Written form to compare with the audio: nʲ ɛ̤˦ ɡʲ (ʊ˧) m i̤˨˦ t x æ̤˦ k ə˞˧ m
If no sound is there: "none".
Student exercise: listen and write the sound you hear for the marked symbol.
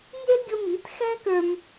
ʊ˧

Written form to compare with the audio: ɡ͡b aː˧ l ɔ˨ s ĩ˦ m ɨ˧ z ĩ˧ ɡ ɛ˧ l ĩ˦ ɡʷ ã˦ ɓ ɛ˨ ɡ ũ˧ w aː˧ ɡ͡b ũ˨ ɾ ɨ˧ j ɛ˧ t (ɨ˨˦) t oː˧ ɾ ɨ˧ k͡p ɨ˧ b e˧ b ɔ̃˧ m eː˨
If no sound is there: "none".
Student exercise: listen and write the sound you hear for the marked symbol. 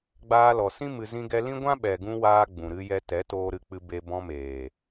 ɛ˨˦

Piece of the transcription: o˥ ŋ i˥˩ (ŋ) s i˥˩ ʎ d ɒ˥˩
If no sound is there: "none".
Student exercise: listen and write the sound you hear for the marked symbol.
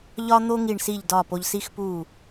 ɳ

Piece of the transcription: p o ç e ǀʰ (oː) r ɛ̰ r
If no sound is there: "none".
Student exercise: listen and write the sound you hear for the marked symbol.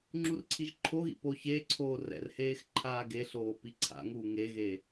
oː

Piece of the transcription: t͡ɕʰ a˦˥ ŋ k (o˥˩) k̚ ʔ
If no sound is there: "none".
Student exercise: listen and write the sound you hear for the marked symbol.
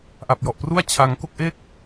o˥˩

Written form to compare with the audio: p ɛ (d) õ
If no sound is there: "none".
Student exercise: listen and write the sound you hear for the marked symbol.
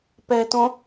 t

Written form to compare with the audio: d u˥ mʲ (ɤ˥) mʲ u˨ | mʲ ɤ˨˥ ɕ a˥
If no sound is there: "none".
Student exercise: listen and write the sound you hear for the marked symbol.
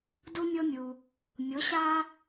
ɤ˥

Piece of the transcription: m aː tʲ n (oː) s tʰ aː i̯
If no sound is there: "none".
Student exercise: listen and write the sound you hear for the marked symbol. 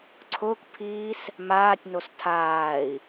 o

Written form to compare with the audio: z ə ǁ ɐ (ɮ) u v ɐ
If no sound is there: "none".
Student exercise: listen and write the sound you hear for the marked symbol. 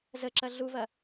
ɮ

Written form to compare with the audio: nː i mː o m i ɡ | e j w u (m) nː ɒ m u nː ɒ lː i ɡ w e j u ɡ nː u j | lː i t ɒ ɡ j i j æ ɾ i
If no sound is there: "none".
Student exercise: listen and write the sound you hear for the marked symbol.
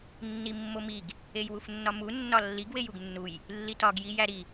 f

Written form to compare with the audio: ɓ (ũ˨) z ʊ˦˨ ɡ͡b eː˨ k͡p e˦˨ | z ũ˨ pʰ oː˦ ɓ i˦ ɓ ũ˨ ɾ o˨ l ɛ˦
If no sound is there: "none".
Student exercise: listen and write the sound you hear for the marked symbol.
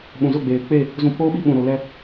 ũ˨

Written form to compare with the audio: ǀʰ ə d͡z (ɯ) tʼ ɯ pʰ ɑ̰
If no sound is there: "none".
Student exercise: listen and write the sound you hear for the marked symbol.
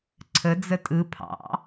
ə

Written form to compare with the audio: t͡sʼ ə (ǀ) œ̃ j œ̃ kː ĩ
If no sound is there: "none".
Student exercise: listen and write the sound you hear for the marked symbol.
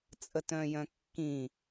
t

